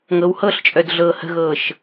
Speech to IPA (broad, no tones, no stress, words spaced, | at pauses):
ŋɤwhɤɬt͡ʃʼœd ɮɤːhə̤ɣɤːʃ